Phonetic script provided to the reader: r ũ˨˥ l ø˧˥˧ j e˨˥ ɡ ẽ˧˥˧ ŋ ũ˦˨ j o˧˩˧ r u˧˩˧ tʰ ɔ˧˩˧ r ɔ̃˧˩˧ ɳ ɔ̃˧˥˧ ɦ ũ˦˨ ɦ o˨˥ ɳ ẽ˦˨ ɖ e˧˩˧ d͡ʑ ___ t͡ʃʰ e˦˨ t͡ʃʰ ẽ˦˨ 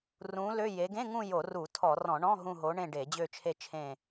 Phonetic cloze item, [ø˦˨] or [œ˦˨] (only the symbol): ø˦˨